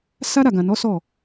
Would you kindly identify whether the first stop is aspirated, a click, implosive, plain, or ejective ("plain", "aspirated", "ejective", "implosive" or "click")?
plain